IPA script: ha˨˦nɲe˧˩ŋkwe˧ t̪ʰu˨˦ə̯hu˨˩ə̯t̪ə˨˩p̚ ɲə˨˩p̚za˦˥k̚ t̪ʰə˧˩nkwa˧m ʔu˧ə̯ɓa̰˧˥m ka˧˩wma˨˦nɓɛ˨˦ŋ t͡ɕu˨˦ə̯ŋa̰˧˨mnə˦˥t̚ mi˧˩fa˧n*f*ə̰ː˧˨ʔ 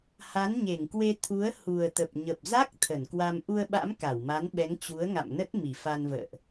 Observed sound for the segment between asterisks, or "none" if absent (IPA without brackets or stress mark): v